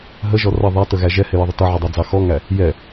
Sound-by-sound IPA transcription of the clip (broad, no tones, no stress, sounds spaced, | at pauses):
ɦ ə ʒ ɔ r ʌ ðˤ æ t ə ɣ æ ʒ ɛ h ɪ j ʌ ðˤ ə t ʌ ʕ ʊ dˤ ɑ d͡z ɑ x ɔ ŋ æ | j ɛ